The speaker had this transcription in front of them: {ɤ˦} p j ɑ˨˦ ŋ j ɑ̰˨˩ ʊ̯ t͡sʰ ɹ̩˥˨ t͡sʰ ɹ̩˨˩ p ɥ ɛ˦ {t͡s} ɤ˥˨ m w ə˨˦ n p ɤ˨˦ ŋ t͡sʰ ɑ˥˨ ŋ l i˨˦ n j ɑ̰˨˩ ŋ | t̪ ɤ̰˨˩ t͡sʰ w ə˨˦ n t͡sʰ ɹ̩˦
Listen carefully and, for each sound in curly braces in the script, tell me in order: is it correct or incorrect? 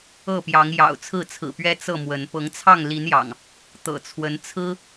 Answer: incorrect: ɤ˥˨, correct

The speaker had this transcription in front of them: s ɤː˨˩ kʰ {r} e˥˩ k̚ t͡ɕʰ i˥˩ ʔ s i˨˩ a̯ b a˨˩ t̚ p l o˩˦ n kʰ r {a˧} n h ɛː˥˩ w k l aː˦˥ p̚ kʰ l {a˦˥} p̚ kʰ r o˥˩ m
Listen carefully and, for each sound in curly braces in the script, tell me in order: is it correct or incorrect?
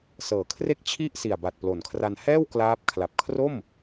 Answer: correct, correct, incorrect: a˨˩

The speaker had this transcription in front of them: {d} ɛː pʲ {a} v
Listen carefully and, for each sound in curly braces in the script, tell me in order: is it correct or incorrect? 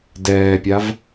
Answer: correct, correct

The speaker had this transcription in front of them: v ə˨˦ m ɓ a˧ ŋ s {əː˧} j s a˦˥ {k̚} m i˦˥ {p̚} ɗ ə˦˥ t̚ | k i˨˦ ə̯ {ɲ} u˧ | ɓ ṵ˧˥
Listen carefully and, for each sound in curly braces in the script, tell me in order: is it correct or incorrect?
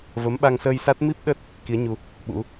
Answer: correct, incorrect: t̚, correct, correct

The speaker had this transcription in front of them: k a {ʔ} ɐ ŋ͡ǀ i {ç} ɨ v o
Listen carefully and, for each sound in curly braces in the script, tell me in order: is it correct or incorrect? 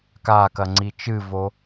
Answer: incorrect: k, incorrect: t͡ʃ

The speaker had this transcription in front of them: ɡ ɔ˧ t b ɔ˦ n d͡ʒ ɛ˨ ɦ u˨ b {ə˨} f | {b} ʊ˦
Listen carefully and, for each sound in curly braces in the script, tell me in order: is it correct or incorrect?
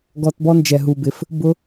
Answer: incorrect: ɪ˨, correct

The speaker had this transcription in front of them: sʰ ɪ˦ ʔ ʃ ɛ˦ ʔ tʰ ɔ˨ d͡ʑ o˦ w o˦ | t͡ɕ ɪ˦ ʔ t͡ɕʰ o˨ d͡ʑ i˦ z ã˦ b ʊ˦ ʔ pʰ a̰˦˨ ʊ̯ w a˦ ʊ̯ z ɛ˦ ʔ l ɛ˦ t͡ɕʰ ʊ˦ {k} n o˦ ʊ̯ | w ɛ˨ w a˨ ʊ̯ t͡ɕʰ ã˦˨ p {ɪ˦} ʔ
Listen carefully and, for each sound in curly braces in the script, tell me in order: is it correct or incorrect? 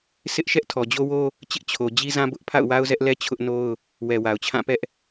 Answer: incorrect: ʔ, incorrect: ɛ˦

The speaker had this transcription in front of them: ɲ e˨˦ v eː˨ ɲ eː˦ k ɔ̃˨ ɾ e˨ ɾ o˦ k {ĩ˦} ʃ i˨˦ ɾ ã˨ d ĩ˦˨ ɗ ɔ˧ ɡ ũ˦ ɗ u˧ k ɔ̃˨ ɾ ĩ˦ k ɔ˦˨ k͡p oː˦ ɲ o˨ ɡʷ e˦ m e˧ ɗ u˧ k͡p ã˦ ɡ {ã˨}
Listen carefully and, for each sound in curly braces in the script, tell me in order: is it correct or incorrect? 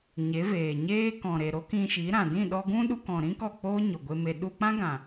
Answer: incorrect: ĩ˧, correct

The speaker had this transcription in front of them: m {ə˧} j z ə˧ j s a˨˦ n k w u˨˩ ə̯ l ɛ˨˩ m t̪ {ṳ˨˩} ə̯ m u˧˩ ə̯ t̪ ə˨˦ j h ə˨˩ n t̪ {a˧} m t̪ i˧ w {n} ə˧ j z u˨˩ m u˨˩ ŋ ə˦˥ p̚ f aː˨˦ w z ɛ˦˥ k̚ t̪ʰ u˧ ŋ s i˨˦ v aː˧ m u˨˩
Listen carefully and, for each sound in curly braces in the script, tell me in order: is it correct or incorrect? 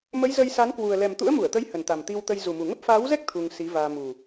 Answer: incorrect: ə˨˦, incorrect: ṵ˧˥, incorrect: a˨˩, incorrect: t̪

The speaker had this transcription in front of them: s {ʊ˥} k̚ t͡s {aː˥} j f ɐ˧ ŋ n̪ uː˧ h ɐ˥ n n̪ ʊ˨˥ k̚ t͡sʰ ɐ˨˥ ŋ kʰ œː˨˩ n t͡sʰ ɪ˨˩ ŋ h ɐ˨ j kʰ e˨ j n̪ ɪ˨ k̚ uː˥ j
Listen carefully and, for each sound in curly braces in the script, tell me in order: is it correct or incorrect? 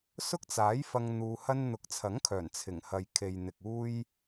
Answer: correct, incorrect: aː˨˥

